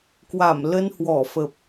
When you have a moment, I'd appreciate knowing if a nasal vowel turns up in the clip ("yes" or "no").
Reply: no